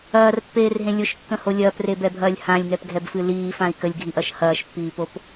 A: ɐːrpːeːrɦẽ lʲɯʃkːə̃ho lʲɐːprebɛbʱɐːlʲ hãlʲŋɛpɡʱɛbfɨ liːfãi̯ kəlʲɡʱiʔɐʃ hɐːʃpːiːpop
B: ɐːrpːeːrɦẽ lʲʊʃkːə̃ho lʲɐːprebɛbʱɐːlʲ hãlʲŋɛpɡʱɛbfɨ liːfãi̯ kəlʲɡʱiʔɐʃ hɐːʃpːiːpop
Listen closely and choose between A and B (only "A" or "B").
B